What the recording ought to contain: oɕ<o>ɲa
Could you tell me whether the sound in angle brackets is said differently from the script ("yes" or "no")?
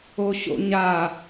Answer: yes